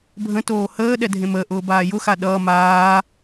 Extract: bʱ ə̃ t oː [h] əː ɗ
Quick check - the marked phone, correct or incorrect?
correct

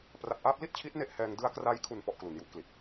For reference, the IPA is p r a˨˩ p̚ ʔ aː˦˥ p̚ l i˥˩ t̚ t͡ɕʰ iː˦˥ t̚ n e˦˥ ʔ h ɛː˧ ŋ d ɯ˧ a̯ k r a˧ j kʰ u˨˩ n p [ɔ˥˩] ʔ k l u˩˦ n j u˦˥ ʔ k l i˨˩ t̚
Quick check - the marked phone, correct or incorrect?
correct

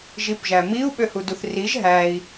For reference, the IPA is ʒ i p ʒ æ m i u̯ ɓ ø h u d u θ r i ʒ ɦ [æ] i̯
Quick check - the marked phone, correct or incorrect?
correct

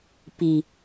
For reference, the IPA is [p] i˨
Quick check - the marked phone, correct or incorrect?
correct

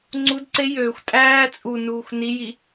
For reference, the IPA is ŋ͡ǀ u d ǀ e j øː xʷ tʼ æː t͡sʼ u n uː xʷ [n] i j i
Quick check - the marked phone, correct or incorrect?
correct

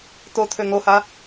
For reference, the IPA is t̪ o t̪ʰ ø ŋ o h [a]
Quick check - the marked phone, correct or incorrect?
correct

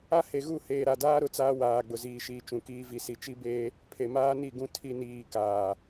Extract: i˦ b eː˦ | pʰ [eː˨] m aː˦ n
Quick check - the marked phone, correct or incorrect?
incorrect: e˨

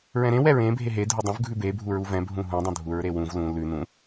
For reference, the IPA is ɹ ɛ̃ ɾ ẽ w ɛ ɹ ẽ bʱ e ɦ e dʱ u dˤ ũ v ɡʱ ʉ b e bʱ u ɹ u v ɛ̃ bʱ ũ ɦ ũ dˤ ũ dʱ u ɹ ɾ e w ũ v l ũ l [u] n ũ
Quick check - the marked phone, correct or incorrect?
incorrect: ʉ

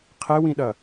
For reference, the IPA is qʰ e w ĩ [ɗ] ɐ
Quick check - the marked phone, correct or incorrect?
correct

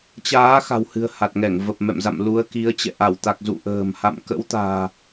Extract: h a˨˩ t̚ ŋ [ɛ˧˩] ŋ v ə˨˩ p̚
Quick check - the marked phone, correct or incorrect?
correct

